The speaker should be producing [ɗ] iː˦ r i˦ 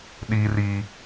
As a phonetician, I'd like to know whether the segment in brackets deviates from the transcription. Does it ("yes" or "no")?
no